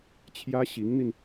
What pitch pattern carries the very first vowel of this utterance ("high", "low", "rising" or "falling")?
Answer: high